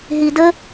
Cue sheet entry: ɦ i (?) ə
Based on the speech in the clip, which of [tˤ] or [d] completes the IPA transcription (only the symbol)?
d